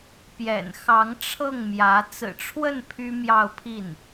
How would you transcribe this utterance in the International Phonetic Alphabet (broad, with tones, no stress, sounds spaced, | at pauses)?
p j ɛ̰˨˩ n x ɑ˧˥ ŋ ʈ͡ʂʰ ɤ˥˩ ŋ m j ä˧˥ t͡s ɹ̩˨˩ ʈ͡ʂʰ w ə˥˩ n pʰ y˥ m j ɑ˥˧ ʊ̯ pʰ i˥˩ n